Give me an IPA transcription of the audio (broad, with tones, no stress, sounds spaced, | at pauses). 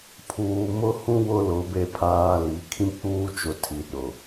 pʰ uː˨ m ʊ˦ h ũ˦ w ʊ˦ l ʊ˨˦ b e˦ pʰ aː˦ l i˨˦ kʰ ĩ˦ k͡p uː˦ t͡ʃ ʊ˨ tʰ i˨ ɗ ʊ˨